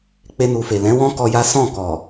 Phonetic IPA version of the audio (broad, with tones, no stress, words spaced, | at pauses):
k͡pe˧nu˨fe˨ lɛ̃˨˦wɔ̃˦ kɔ˧ja˦ sɔ̃˦˨kɔ˨